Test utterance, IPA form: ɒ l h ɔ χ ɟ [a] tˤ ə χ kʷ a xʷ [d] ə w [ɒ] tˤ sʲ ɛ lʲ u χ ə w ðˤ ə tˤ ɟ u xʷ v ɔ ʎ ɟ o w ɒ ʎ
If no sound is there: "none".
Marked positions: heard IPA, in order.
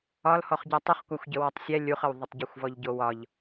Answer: a, ɟ, ɒ

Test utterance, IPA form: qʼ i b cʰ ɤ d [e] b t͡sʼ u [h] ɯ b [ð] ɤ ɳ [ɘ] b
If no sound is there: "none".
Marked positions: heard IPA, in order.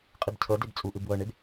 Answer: e, ʔ, w, e

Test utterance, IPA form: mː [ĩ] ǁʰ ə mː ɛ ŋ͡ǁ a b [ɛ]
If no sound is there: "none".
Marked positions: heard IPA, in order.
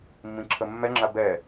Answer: ĩ, ɛ

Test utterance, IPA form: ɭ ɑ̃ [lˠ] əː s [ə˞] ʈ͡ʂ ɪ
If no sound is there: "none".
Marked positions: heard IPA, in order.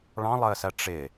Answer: lˠ, ɜ

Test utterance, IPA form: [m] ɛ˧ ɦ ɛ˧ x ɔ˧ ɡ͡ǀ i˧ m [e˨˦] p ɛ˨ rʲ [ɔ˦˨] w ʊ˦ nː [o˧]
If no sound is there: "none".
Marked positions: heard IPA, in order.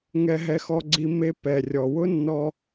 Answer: ŋ, e˦, ɔ˨, ɔ˧

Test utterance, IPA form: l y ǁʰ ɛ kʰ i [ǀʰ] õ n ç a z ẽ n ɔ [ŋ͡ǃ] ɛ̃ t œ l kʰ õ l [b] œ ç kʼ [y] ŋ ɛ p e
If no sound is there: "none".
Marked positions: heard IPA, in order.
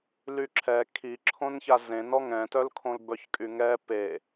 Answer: ǁʰ, ŋ, b, y

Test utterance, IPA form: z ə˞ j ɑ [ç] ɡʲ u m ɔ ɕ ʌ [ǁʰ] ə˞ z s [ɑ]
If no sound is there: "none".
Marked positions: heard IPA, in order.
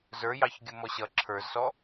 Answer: ç, ǁʰ, ɔ

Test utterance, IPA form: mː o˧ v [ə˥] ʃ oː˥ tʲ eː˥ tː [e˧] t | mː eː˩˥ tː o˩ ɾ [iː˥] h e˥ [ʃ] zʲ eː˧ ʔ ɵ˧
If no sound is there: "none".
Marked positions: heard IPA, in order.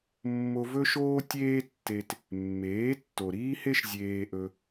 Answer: ɵ˥, e˧, iː˥, ʃ

